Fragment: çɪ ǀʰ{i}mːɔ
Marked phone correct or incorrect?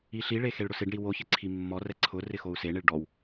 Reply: correct